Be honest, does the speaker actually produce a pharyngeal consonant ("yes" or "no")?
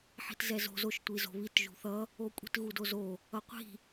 yes